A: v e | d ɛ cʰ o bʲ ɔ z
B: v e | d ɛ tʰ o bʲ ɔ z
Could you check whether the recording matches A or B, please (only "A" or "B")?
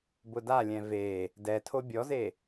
B